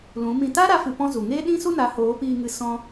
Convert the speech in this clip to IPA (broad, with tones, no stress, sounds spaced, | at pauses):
l ũ˨˦ m ĩ˧ t a˦ ɾ a˧ f ɨ˧ p ɔ̃˦ z u˨ ŋ eː˦ ɗ ĩ˦ s u˦ n a˨˦ h oː˨˦ p iː˧ ŋ ɨ˧ s ɔ̃˧